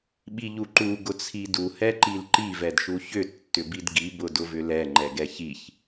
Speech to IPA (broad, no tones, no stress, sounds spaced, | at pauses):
ɓ i ʎ u ǃ u ɡ ʊ t͡sʰ i d u h ɛ ǃ i l ǃ i v ɛ d ʃ u ç ʏ tː ʏ b i d ɡ i b ʊ d ʊ v ʏ l ɛ ŋ͡ǃ ɛ ɡ ɛ ç i ç